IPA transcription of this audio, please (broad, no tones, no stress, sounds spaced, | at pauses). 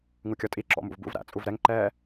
ŋ u kʲ ɔ tʼ i ǁ ɔ̰ m ṵ v b ṵ v ɾ æ̰ t͡sʼ u v ɾ ɛ ŋ ǃ ɛː